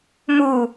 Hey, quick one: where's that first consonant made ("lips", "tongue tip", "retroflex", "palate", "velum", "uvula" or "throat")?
lips